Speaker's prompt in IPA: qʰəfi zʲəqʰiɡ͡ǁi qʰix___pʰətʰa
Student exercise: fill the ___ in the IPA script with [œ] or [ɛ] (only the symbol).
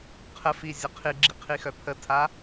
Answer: œ